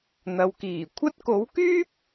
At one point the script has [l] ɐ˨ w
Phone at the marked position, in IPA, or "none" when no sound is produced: n̪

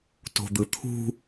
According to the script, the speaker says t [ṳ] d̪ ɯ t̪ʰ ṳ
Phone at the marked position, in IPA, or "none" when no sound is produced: o̤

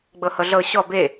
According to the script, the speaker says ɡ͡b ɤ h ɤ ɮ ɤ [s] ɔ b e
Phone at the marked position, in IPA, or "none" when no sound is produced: ɕ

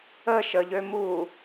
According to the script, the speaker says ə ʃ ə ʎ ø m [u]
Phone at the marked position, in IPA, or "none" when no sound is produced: u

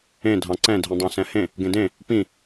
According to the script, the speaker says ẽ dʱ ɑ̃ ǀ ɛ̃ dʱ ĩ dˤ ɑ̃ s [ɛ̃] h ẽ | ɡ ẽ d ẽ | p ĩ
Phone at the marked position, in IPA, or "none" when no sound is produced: ɛ̃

